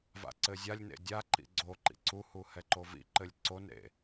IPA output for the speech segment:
v a̰ ǀ ɘ zʲ a lʲ n ḛ dʲ a ǃ ḭ ɡ͡ǀ o ǃ ḭ ǀ u h u h ɛ ǃ o v ḭ ǃ ɘ lʲ ǀ o n ɾ ḛ

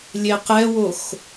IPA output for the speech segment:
lʲ e q ɛ w o x

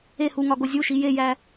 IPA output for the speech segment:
e h u ŋ ɒ ɡ o zʲ u ʃ i j e j æ

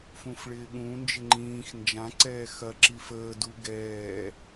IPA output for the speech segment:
f ũ f ɭ ɪː ɠ ũ n d͡ʒ ɪ ŋ͡ǃ ĩː x n d͡ʒ ã ǀ ɛː x ɐ ǁ i f əː d u ɡ ɛː

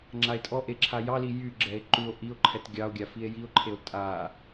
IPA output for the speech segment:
ŋ͡ǁ a e̯ tʼ ɔ ʔ e ǁʰ a j ɑ l i j y ɡ͡ǁ ɛ e̯ ǃ u o̯ ʔ i o̯ ǃʰ ɛ t ɡʲ ɑ o̯ ɡʲ a f i e̯ j i o̯ ǃʰ e o̯ tʼ a

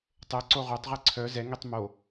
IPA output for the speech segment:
tˤ ɘ ǀ o ʁ o tˤ ʁ i ǀʰ œ z ɛ ŋ i tˤ m o

